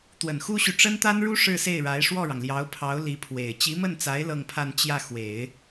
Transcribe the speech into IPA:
t̪ w ə˨˩ n x u˥ ɕ y˨ ʈ͡ʂ ə˥ n t̪ a˥ n ɻ u˥ ʂ ɻ̩˥˧ s e˥˩ ɪ̯ ɻ a˧˥ ɪ̯ ʂ w ɔ˥˩ ɻ ɑ˩ ŋ l j ɑ˧˥ ʊ̯ pʰ ɑ˧˥ ʊ̯ l i˧˥ pʰ w e˨˩ ɪ̯ t͡ɕ i˧˥ m ə˥˩ n t͡s a˧˥ ɪ̯ l ɤ˥˧ ŋ pʰ a˥˧ n t͡ɕ j ä˥˩ x w e˨˩˦ ɪ̯

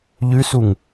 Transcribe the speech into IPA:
ʎ ʉ s u ŋ

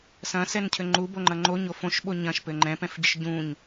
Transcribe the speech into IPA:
s ɐ̃ s ɛ n cʰ ɘ ŋ͡ǃ u b o ŋ͡ǃ ɐ ŋ͡ǃ o ɲ o f õ ʃ ɓ o ɲ ɐ̃ ʃ p ɘ ŋ͡ǃ ɛ̃ p ɛ̃ f ɟ ɘ ʃ ɟ ũ ɲ

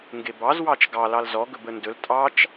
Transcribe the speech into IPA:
ŋ ɡ e b ɑ z w ɑ t͡ʃ ɡ ɑ l ɑ l z ɔ ɡ ɵ b ə n d ɵ l tʼ ɑ t͡ʃ

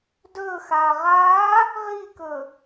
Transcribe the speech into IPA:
d ɵː x aː ʁ aː | ʁ i k ɵ

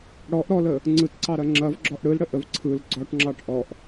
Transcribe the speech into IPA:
ɽ ɔ ʔ ɾ ɔ l ə | ŋ͡ǀ ɯ t ǀ ɑ ɾ ɐ ŋ͡ǁ ɐ v ɡ͡ǁ ɔ ʔ ɽ ɯ l ɽ ə ʔ ə v ǀʰ ɯ l ɡ͡ǀ ɔ ʈ ŋ͡ǁ ɑ ʈ ʔ ɔ ʔ

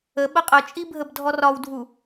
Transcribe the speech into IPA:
ə ɓ ə qʼ ə t͡ʃʼ i bʱ ə b dʱ ɔ r ɒ w dʱ u

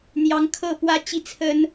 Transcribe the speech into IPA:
n̪ j ɑ˧˥ ŋ kʰ ɤ˥˩ p w ä˥ t͡ɕ i˥˩ t͡sʰ ə˥ n

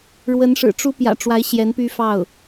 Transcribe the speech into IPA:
ɻ w ə˧˥ n ʂ ɻ̩˨˩ ʈ͡ʂ u˥ p j ä̰˨˩ ʈ͡ʂ w a˧˥ ɪ̯ ɕ j ɛ˧˥ n p y˥ f ɑ˥˩ ʊ̯

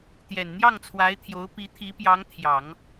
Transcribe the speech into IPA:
t̪ j ɛ˨˩ n n̪ j ɑ˥˩ ŋ t͡sʰ w a˧˥ ɪ̯ t̪ʰ j o˧˥ ʊ̯ p i˧˥ t̪ʰ i˧˥ p j ɑ˧˥ ŋ t̪ʰ j ɑ˨˩˦ ŋ

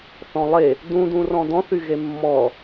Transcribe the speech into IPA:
θ ɔ̃ lˠ e | d ũ d ũ r ɔ̃ d ɔ̃ θ y ɣ e mː ɔ

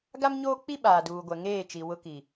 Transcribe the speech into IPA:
ɡ a˦ m ɲ oː˦ k͡p i˦ ɓ aː˨ d uː˨ ɡʷ ɛ˨ ŋ eː˦˨ t͡ʃ i˨ w ʊ˦ k i˨

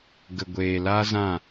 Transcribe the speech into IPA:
ɡ ə˨ ɡʷ eː˨ l a˦ z ã˦˨

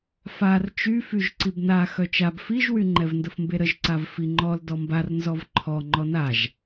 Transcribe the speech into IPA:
f a r t͡ʃ y f y ʒ ǀ i b n a x œ t͡ʃ a b f i ʒ w y ŋ͡ǃ ɛ v n d ə f m b e ɾ ə ʒ ǀ a v f i ŋ͡ǃ ɔ l d ɔ m b a r n z ɔ v ǃʰ ɔ ŋ͡ǃ ɔ n a ʒ

